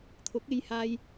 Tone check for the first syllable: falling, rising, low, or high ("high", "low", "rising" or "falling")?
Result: rising